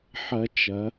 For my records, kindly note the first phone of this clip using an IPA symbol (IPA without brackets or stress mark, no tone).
ħ